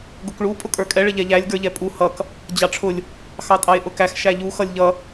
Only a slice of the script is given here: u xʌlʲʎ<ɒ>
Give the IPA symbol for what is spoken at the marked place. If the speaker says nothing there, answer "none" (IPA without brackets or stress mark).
ʌ